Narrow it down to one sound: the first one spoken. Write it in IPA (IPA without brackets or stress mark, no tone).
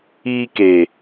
iː